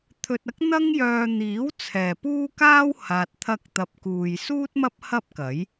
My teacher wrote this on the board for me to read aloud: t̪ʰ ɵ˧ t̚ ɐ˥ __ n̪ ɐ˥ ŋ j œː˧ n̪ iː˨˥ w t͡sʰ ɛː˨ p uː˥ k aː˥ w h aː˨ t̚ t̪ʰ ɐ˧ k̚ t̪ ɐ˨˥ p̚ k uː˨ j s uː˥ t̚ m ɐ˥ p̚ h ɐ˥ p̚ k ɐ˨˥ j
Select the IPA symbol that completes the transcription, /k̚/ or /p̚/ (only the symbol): k̚